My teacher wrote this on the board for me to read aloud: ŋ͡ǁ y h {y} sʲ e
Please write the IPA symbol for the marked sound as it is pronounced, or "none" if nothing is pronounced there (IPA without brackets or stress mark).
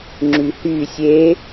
y